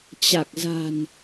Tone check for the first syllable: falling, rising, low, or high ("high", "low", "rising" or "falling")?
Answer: low